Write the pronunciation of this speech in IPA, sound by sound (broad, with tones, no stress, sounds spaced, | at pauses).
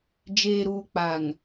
d͡ʒ eː˨ ɾ uː˨ k͡p a˨ ŋ